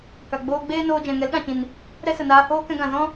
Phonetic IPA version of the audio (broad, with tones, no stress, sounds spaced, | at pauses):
k a˨ ɡ͡b oː˧ ɡ͡b eː˦ n oː˧ d͡ʒ ɛ̃˨ ŋ ɛ˨˦ l ɗ ã˨ t͡ʃ ĩ˨ n | ɾ ɛ˦ s ə˨ n aː˧ h oː˦ k ɛ̃˧ ɡ ã˨ z ɔ̃˦